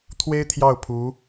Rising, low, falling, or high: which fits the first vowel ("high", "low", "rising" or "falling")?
high